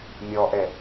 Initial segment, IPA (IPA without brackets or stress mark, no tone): mʲ